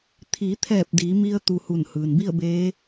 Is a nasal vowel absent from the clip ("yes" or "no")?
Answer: yes